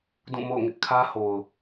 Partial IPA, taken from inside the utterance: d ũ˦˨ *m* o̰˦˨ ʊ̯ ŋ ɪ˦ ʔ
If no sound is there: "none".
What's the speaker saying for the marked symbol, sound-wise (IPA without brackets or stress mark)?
m